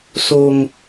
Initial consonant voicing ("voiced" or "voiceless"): voiceless